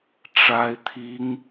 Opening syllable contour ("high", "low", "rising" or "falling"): high